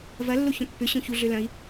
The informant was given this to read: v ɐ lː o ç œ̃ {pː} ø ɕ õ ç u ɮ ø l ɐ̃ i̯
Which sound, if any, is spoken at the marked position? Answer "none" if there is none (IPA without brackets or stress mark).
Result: pː